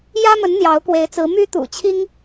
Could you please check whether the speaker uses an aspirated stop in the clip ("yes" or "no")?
yes